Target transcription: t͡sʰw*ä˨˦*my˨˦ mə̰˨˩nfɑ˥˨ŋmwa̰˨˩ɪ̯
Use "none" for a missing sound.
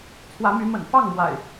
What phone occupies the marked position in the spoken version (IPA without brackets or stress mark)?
ä˨˦